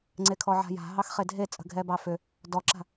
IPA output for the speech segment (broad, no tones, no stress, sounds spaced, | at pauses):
ŋ͡ǀ e kʰ ɔ ʕ a̤ j a̤ ɦ ɑ x χ e dʱ e t͡sʼ ə̤ ɡʱ ɛ b ɑ f ʏ | d ɔ ǁ a̤